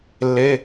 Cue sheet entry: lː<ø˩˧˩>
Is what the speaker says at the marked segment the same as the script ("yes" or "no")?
no